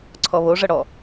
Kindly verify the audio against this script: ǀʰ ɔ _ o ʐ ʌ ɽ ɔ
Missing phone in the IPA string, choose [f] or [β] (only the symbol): β